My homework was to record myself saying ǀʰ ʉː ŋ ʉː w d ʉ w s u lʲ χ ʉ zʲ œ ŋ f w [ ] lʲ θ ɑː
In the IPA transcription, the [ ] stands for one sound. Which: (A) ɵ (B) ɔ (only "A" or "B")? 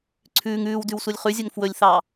A